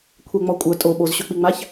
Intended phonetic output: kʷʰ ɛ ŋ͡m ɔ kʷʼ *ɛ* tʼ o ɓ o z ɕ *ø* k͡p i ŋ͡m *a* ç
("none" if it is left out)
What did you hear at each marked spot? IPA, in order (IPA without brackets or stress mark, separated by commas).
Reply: œ, ø, a